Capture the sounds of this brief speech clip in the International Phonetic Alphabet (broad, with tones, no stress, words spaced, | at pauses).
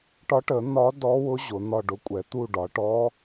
ʈɒ˧˥ʈə˩˧ n̪ɒ˧˥ dɔ˧˥wʊ˧˥ ʑʊ˩˧n̪ɒ˦˨ ɖʊ˧˥kʷʼɛ˩˧t̪u˦˨ɖɒ˩˧ ʈɔ˧˥